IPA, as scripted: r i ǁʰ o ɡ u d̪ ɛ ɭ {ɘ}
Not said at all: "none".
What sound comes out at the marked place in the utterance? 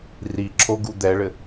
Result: ɘ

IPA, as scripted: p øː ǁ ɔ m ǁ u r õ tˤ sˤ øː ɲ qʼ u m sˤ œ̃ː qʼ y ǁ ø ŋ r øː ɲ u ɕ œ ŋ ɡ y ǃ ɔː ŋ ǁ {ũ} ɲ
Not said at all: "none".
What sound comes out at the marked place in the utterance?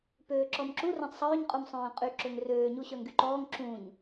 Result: ũ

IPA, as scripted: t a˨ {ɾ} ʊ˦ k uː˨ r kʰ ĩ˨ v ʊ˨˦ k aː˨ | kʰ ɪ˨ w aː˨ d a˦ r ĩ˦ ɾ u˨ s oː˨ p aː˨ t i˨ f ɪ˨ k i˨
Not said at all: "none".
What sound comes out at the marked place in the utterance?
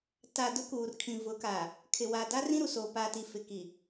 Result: d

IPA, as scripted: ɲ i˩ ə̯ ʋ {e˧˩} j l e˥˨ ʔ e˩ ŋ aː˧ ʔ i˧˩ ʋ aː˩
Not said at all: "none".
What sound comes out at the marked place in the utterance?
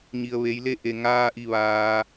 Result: e˩˧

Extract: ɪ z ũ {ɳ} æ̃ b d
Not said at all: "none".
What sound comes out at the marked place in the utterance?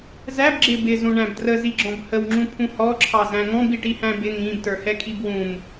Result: ɳ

